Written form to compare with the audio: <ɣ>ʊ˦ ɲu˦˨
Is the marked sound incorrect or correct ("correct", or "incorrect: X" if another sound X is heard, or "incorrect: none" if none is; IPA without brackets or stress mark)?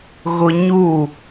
correct